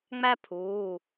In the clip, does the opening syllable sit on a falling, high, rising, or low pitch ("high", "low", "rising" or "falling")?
high